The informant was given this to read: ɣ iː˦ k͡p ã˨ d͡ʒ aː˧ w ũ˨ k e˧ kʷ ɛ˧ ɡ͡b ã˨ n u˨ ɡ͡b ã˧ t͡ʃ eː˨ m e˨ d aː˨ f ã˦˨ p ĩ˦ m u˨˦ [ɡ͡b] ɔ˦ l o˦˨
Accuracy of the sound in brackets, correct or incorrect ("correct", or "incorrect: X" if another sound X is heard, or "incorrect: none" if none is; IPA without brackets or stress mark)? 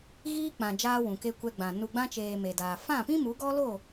incorrect: ɡ